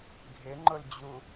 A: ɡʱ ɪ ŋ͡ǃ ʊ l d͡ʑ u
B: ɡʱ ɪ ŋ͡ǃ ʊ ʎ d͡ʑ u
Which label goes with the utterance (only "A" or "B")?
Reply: A